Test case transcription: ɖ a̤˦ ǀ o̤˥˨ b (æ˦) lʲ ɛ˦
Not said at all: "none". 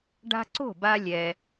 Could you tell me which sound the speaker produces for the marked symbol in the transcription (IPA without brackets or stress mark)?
a˦